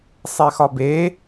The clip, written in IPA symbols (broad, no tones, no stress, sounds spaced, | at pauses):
sˤ e x ɒ b e